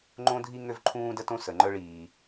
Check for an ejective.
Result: absent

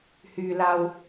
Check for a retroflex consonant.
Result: absent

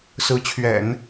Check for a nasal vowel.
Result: absent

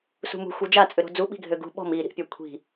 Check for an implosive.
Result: present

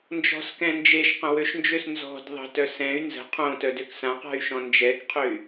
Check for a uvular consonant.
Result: present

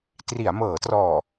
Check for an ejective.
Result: absent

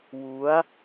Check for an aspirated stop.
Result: absent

